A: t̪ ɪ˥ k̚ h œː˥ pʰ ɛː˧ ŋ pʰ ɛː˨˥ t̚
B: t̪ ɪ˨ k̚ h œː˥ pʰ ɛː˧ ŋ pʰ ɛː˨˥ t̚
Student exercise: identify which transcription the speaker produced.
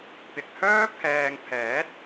B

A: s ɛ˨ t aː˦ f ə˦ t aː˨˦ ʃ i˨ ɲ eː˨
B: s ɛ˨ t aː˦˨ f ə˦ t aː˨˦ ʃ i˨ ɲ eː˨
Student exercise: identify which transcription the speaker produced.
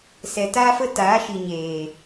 A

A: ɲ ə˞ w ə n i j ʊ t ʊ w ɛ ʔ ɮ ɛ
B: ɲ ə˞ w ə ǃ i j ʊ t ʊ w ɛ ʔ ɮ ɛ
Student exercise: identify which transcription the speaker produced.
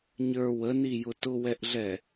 A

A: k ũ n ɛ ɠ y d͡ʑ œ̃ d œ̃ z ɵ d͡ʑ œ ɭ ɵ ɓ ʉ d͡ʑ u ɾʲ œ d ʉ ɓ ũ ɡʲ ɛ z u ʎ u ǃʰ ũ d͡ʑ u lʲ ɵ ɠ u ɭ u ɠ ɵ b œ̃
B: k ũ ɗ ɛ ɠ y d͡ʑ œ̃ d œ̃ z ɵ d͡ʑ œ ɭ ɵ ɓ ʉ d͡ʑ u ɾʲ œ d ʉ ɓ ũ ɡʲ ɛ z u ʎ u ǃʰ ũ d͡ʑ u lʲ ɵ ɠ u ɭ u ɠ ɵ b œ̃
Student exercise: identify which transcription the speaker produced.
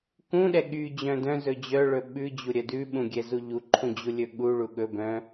B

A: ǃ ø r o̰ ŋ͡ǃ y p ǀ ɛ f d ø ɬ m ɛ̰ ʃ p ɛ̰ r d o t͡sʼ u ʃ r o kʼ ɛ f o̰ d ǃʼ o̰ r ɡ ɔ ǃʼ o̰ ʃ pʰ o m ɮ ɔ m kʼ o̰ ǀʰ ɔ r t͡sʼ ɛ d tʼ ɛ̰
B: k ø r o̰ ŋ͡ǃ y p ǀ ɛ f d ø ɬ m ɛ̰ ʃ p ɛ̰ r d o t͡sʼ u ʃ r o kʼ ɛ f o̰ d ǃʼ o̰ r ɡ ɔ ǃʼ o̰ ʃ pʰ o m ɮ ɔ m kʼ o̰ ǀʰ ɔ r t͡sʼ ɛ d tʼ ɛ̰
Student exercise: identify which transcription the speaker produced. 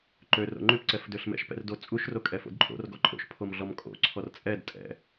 A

